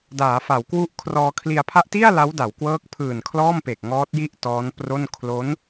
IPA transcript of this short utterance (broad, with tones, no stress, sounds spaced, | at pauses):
d aː˩˦ f a˩˦ w k w u˦˥ ʔ kʰ r ɔː˧ kʰ l i˧ a̯ pʰ a˦˥ ʔ t i˥˩ a̯ l a˦˥ w d a˩˦ w k w ɤː˦˥ k̚ pʰ ɯː˨˩ n kʰ l ɔː˥˩ m p e˨˩ k̚ ŋ ɔː˦˥ t̚ j i˥˩ ʔ t ɔː˦˥ n p r o˥˩ n kʰ l o˦˥ n